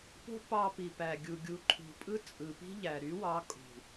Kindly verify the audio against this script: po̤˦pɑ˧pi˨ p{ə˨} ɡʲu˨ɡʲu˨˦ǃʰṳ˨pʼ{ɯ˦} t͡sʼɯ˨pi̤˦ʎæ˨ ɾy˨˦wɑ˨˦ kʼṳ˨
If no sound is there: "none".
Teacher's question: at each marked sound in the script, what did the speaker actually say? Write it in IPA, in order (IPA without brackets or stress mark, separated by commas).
æ˨, ɯ˦